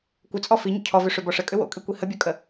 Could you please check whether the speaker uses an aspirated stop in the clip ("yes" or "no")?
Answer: yes